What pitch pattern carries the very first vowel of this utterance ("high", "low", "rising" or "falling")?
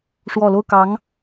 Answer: low